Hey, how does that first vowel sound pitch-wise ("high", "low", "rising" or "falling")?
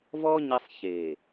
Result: high